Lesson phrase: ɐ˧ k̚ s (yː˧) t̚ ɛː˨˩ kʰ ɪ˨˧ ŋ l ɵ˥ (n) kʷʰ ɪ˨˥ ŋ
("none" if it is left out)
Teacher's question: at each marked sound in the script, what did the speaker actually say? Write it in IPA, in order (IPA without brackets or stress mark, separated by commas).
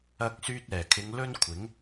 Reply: yː˧, n